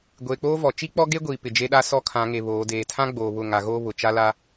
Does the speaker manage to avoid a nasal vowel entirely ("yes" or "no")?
no